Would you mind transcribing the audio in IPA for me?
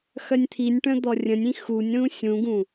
x œ nʲ t̪ʰ i nʲ ʈ œ̃ d̪ ɔ rʲ ə̃ nʲ ĩ x u nʲ ɾ ũ sʲ ũ ɡ ũ

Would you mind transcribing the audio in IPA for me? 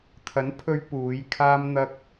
t̪ʰ ɐ˨˥ n pʰ ɵ˧ ɥ p uː˨˧ j kʰ aː˥ m n̪ ɐ˥ k̚

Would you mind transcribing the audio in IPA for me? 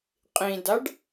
qʼ ĩ d a ɖ

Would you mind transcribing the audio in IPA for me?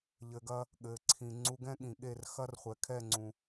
ʎ ɘ˨ ɡ ɐ˧ | ɠ ɘː˨ ǀʰ ĩ˨ ŋ͡ǀ u˧ ɡ ɛ̃˦ ɠ ĩ˨ ɠ e˦˨ r x ɐ˦ r χʷ ɛ˨ kʰ ɛ˦˨ ŋ͡ǀ ũ˨

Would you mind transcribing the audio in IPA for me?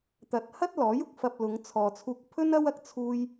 t̪ ɐ˨ t̚ h ɐ˥ t̚ l ɔː˨˥ j ʊ˨ k̚ f ɐ˧ p̚ l ʊ˨˧ ŋ t͡sʰ ɔː˨ t͡sʰ uː˧ k̚ pʰ ɵ˥ n ɐ˥ w ɐ˧ k̚ t͡sʰ uː˥ j

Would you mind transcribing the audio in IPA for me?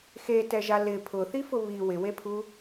x e t ɛ ʒ a l ɪ pʰ ʊ θ i f ʊ β i w ɪ w e pʰ u

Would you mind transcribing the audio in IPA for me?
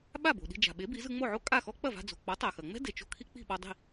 ɓ a˥˩ b o̤˩ ɗ i̤˧ d͡ʒ a̤˩ ɓ e˩˥ b i˩˥ z ɯ˧ ŋ͡m o˥˩ ʕ o˥ kʼ a˥˩ x ɔ˥ k͡p ɐ˥˩ v a̤˧ d͡z o̤˩ k͡p ɔ˩˥ tˤ a˩ x ɐ˩ ŋ͡m ɛ̤˥ d e˩ t͡ʃ o̤˥˩ kʰ i˥ k͡p i̤˥˩ ɓ ɔ˧ dˤ i̤˥˩

